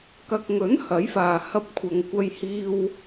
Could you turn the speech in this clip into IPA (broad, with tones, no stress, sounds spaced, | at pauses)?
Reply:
k ɐ˨ k̚ ŋ ɵ˨˥ n h ɐ˨˥ j f aː˨ h ɐ˥ p̚ kʷʰ ɐ˧ ŋ kʷ ɐ˧ j h iː˧ w